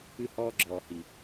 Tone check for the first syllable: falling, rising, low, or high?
falling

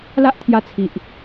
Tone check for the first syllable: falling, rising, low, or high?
high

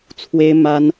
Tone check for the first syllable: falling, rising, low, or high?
high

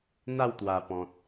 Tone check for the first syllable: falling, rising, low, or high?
falling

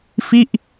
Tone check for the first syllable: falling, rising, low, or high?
falling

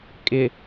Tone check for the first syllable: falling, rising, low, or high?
low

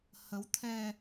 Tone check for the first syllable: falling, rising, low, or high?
rising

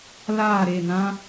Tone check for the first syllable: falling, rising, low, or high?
falling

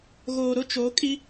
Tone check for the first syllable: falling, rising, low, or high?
low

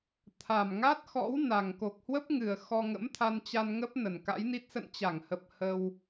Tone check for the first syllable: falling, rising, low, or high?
low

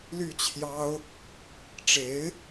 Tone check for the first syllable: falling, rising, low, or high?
falling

